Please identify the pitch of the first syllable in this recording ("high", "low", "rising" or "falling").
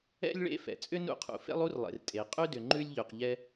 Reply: high